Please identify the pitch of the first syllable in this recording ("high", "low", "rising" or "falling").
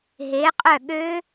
rising